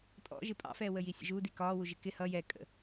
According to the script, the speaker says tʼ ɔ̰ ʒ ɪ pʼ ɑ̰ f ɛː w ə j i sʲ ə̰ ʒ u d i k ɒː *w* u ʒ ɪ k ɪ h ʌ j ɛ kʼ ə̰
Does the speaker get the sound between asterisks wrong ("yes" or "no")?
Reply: no